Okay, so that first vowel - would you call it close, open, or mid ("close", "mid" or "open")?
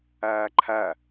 open